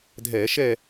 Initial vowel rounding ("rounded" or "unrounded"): unrounded